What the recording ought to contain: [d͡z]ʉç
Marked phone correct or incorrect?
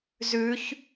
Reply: incorrect